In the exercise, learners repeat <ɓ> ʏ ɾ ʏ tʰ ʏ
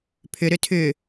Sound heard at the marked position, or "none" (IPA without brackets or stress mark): pʰ